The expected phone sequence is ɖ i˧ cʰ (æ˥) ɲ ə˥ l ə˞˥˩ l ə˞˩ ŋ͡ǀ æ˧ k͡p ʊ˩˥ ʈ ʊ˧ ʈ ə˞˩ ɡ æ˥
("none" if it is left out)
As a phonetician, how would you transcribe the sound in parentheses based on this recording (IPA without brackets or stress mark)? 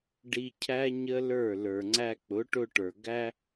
æ˥